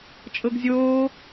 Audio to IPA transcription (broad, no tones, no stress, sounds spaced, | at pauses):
t͡ʃʼ ɤ ɡ zʲ oː